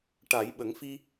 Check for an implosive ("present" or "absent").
present